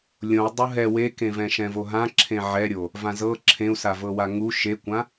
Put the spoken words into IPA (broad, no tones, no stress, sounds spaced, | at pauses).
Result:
lʲ õ u̯ dˤ u ɦ ɛ w e k ẽ v ɛ̃ ʃ ɛ̃ v o ɦ ã ǁʰ ẽ ʕ ɛ ɾʲ o | v ã z ɤ ǁʰ ẽ u̯ s a v ɤ w a ŋ u ʃ e kʷ ã